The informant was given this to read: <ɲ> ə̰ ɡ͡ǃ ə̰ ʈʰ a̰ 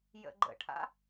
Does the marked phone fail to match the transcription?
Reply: yes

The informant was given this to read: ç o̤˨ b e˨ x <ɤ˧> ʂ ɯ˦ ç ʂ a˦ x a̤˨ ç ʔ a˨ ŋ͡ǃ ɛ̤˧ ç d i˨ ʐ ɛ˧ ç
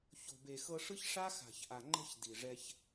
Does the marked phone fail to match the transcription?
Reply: no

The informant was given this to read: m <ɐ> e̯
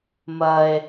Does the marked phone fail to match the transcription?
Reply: no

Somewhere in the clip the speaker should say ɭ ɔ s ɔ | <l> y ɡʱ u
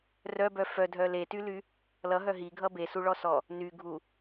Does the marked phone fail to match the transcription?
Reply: yes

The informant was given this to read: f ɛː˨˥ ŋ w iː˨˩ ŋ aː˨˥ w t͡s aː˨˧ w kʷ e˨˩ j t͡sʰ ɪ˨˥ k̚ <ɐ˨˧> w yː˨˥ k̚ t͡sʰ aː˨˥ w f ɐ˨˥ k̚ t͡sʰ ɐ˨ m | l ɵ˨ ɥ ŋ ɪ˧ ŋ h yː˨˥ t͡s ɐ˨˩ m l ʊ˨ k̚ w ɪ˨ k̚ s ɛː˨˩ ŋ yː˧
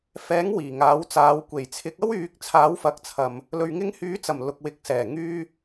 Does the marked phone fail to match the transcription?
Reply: yes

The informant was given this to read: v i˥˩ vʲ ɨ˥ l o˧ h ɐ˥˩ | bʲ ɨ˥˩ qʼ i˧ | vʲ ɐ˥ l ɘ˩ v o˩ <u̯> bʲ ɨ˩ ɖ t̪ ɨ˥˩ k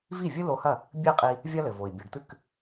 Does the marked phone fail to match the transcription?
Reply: yes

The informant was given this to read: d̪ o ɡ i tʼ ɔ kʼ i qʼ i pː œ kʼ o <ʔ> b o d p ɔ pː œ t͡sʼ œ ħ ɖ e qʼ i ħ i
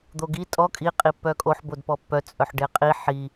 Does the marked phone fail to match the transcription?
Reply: yes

